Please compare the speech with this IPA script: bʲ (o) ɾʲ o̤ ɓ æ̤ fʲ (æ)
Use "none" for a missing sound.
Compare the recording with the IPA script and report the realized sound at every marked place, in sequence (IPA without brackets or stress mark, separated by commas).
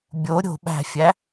o, æ